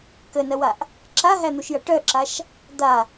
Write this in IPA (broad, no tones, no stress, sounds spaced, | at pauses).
k ə n ɐ w a ʔ | ǁ a ɦ æ n̪ u ʃ j ɐ ʈ œ ǁ a ʃ | d̪ a